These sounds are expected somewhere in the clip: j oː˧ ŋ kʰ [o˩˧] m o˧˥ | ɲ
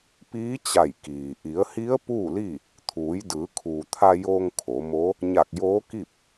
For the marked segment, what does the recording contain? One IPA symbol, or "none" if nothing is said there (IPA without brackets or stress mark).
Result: o˩˧